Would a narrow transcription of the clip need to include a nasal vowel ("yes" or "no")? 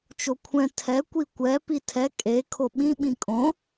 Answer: yes